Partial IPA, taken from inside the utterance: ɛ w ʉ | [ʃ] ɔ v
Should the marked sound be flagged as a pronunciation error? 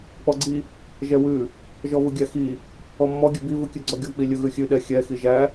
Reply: yes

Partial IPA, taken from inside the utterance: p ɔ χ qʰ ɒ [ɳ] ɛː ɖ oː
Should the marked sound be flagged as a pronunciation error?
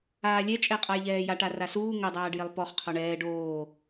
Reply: no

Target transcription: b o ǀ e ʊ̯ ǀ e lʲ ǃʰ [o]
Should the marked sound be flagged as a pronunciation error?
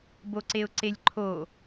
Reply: no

